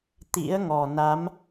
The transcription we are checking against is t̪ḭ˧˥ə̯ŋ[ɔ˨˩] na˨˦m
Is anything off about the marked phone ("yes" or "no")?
no